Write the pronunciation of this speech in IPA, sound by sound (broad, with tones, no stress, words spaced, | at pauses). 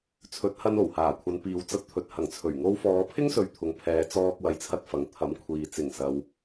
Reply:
t͡sʰɵ˨˥t̚hɐ˧n o˨˩whaː˨˩kʷʰɐ˨˧n piː˨wt͡sɐ˧t̚ t̪ʰɵ˨t̚hɐ˨˩ŋt͡sʰɵ˨˩ɥ ŋo˧wfɔː˨˧pʰɪ˥ŋsɵ˨ɥ t̪ʰʊ˨ŋpʰɛː˨˧t͡sɔː˧k̚ wɐ˧jt͡sʰɐ˥t̚fɐ˨˥ŋ t̪ʰɐ˨˥mkʷʰiː˨ t͡sɪ˨˩ŋsɐ˨w